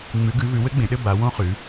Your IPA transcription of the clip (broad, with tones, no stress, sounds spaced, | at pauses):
ŋ͡m ʉ˨˦ ɡ ʉ˨˦ v ʉ˨˦ w ɘ˦˥ ɡ͡b ẽ˨˦ ɗ ɘ˥˧ b a˨˦ w õ˦˥ χ ʉ˨˦